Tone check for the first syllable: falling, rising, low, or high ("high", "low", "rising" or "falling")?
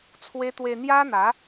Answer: high